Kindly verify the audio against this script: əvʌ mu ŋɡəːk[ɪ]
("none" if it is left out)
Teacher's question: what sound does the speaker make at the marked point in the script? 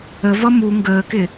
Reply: ɪ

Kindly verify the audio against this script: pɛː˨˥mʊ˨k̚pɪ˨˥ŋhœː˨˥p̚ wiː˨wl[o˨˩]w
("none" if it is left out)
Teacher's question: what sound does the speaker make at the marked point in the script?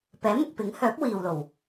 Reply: o˨˩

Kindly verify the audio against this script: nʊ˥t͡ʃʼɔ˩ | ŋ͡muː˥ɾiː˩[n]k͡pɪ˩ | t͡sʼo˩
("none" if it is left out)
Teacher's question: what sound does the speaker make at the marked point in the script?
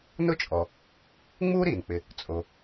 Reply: n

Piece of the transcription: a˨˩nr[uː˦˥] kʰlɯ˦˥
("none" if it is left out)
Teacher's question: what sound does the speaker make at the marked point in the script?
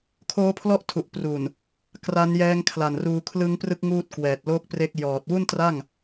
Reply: uː˧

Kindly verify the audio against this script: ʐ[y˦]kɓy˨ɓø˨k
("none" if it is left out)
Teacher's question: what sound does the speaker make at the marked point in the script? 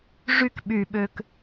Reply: y˦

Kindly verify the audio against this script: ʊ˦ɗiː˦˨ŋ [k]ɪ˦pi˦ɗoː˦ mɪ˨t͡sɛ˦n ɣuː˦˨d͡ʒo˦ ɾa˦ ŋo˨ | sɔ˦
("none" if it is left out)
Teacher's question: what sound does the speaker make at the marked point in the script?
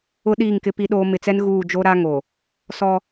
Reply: k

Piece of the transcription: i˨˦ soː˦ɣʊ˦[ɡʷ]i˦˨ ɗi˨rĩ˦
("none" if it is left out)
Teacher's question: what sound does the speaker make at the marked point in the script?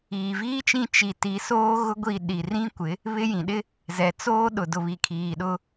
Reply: ɡʷ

